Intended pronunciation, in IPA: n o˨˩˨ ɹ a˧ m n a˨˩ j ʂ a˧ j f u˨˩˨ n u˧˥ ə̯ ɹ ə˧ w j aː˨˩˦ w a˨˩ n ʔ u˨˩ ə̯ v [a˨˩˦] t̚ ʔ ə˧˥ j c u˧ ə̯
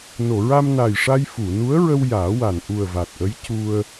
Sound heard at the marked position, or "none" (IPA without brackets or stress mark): a˨˩